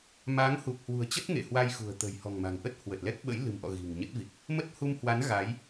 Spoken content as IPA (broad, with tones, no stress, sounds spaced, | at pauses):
m a˨˦ ŋ h u˨˩ k̚ h w ṳ˨˩ ə̯ t͡ɕ ə˦˥ t̚ ŋ ḛ˧˨ h w a˧ j x ṳ˨˩ ə̯ t̪ ə̤˨˩ j h ɔ̤˨˩ ŋ m a̤˨˩ ŋ ʔ ə˦˥ t̚ h w ə˨˩ t̚ l ɛ˦˥ k̚ ɓ ə̰˧˥ j l ɨ̤˨˩ m ʔ ɔ̰˧˨ ɣ i̤˨˩ ŋ ɲ ə˦˥ t̚ v i˨˩ k̚ | m ə˦˥ t̚ h u˧ m h w a˨˦ n ɣ a˨˦ j